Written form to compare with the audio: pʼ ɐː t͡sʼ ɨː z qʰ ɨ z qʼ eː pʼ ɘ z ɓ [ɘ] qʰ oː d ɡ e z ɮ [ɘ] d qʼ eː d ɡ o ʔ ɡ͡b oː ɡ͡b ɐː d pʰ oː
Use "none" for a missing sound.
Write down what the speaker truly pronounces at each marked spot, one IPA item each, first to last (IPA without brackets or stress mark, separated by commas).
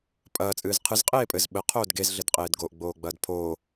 ɘ, ɘ